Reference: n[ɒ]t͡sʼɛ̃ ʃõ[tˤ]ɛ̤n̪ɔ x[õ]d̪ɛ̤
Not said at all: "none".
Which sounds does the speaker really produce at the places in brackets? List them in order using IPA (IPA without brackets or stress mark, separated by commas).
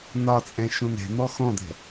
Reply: ɒ, n, ɔ̃